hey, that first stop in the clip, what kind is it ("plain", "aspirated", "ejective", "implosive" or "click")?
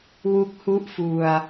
plain